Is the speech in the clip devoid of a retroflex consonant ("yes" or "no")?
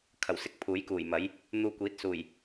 yes